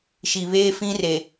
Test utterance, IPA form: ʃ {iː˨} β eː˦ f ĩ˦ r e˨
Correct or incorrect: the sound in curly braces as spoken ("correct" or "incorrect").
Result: incorrect